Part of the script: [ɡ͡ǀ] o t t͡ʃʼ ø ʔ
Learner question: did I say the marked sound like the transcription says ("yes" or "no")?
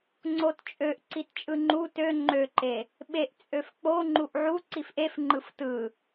no